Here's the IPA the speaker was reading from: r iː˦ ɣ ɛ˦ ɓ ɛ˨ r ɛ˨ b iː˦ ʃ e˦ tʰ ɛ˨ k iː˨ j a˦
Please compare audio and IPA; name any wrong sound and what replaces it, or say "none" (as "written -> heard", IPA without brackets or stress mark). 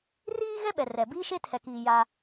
none